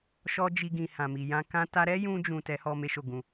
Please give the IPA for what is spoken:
ʃ ɔ˦ d͡ʒ i˧ ɡ ĩ˨ h ã˨ m i˨ j ã˧ k ã˦ t a˦ ɾ ɛ˦ j ũ˧ d͡ʒ ũ˨ t ɛ˨˦ h ɔ˧ m e˦ ʃ o˦˨ ɡ ũ˧

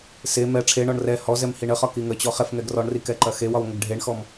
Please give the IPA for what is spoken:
s e m ɛ ʈ͡ʂʰ e ɳ ɔ ɳ r ɛ h ɔ z ɛ m h i ɳ ə χ ɒ k i ŋ ə t͡ɕ ɔ χ ɛ f ŋ ɛ ɡ r ɔ ɳ r i k ɛ ǃ ɐ x e w ɒ w ŋʷ ə ɡ ɖʱ e ɳ x ɔ m

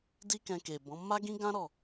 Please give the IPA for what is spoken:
d i˦ k ɛ̃˧ k e˨ b ɔ̃˨˦ m a˦ ɡ ĩ˦ ɡ ã˦ ɾ ɔ˦˨

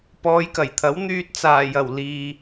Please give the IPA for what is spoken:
p ɔː˨˧ j k ɐ˨˩ j t̪ʰ ɐ˨˥ w n̪ yː˧ t̚ t͡s aː˨˩ j ɐ˨˩ w l iː˨

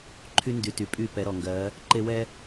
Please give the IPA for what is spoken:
ǃʰ y˦ n d y˨ t y˨ pʼ y˦˨ p ɛ˨˦ ɾ ɔ˨ ŋ ɡ ɜ˨˦ | ǃ e˦ w ɛ˦

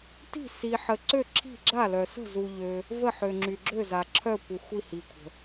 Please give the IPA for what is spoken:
t i̤˦˨ s i˨ ħ ə˨ ǀ ø˦˨ ǁʰ i̤˦˨ ɡ͡ǁ a˦˨ l œ˨ s ə̤˦˨ z u˨ ʎ ø˨ | v ə˦˨ ħ ø˨ ŋ͡ǁ y˨ ɡ͡ǁ ø˦˨ z a˨ ǁʰ œ˦˨ kʷ ə˨ xʷ i˦˨ h i˨ kʷʰ ə̤˨

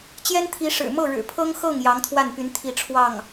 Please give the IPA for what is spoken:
t͡ɕ j ɛ˥ n t̪ʰ i˧˥ ʂ ɻ̩˨˩ m ɤ˥˩ ɻ ɻ̩˨˩ pʰ ɤ˥ ŋ x ɤ˥˩ ŋ j ɑ˧˥ ŋ t̪ʰ w a˥˩ n p y˧˥ n t̪ʰ i˥˧ ʈ͡ʂʰ w ɑ˥˩ ŋ

